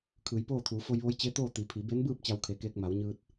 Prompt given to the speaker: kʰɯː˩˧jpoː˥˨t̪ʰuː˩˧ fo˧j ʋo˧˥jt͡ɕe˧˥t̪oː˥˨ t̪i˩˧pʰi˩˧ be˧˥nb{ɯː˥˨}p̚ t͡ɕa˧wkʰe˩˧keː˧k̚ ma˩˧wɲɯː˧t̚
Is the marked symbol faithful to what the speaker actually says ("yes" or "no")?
yes